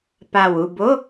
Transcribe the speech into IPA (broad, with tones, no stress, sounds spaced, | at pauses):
p a˨˩ w u˦˨ b o˧˥˧